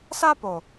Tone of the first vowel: high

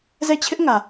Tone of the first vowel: falling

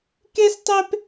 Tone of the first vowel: high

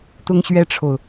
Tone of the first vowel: high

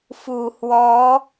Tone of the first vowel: low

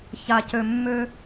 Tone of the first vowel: low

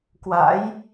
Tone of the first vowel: rising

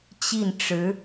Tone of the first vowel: falling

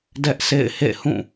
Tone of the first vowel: high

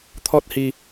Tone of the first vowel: high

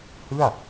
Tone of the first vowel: falling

